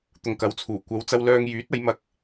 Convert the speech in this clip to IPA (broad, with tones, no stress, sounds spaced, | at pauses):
t̪ ʊ˨ ŋ k ɐ˨˥ w t͡sʰ uː˨˩ kʷ ɐ˨˧ w t͡s ɐ˧ w l œː˧ ŋ j yː˨˥ t̚ ɐ˨˧ j m ɐ˧ k̚